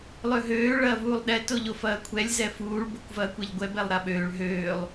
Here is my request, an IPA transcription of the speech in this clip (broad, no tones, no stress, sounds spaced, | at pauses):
lˠ ø ɦ øː ɭ ɐː v uː lˠ ɗ ɛ t o ʎ o f ɐː kʷʰ ɛ lʲ z ɛ f uː ɭ b o kʷ v ɐː kʷ ɛ ʎ ɡʷ ɛ b ɛ lˠ ɾ a ɓ øː ɭ ɦ øː lˠ